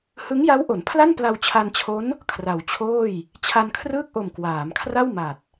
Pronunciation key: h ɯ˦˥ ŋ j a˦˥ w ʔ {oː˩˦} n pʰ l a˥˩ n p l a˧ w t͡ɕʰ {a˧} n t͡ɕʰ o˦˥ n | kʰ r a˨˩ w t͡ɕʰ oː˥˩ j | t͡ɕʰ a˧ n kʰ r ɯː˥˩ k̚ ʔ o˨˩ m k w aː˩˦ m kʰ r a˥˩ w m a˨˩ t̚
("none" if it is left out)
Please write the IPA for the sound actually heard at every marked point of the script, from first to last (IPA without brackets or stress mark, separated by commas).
o˩˦, a˧